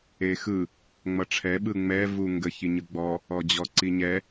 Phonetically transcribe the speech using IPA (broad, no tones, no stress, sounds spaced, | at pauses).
e x ɯ | ŋ͡m ʌ ʈ͡ʂʰ ɛ ɓ ɯ ŋ͡m ɛ v u ŋ ɡ ə ç i ɲ ɯ ɡ͡b ɔ | ɔ d͡ʑ ɔ ǀ i ɲ ɛ